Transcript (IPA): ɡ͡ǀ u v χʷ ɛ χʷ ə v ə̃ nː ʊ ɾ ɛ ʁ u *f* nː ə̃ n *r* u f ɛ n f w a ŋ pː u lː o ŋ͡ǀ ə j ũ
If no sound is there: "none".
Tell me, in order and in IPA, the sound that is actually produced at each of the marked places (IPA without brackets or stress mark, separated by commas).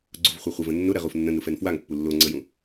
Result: f, ɾ